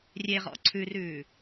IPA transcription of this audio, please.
rʲ e ʁ ɔ̰ ǀʰ ʉ r ʉː

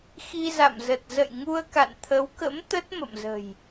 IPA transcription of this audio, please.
x i˧ z a̰˧˨ m z ə˨˩ t̚ z ə̰˧˨ j ŋ u˧ ə̯ k a̰˧˨ n t̪ʰ ə˨˦ w k ə̰˧˥ m t̪ ə˦˥ t̚ m ə̰˧˨ m z ə̤˨˩ j

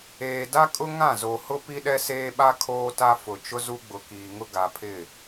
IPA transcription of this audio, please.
eː˨ d a˦ kʼ ʊ˦ ŋ ã˦˨ z o˨ h ʊ˦ p i˦ ɗ ɛ˦ s eː˦ ɓ a˦ kʰ oː˦ t a˦ f ʊ˨ t͡ʃ ʊ˦ z u˦ ɡ͡b ʊ˨ k iː˨ ŋ ʊ˦ ɡ a˨ pʰ ɪ˦˨

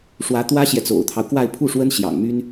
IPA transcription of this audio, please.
ʂ w ä˧˥ t̪ w ä˥ ɕ j ɛ˨ t͡s o̰˨˩ ʊ̯ t̪ʰ ɑ˦ ʊ̯ k w a˥˧ ɪ̯ pʰ u˥˩ ʂ w ə˥ n ɕ j ɑ̰˨˩ ŋ m y˥ n

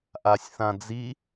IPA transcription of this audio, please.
ʔ a sʲ θ ã d͡z i

